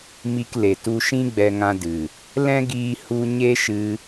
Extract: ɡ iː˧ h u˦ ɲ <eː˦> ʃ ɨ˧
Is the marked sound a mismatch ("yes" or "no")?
yes